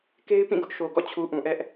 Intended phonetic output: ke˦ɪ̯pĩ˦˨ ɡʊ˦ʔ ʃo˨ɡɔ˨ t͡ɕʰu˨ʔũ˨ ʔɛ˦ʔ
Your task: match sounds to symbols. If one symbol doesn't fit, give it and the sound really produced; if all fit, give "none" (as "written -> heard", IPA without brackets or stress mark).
ɔ˨ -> ɔ̰˦˨